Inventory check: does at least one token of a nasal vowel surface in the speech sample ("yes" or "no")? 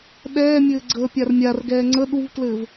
no